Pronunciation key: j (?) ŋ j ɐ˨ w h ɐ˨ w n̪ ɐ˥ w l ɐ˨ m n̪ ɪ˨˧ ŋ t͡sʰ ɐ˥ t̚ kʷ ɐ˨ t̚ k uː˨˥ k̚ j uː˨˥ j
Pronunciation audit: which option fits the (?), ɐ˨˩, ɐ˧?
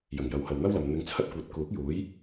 ɐ˨˩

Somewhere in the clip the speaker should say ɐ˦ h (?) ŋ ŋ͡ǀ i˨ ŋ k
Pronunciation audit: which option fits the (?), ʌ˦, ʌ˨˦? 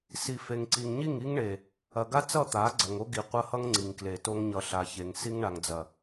ʌ˦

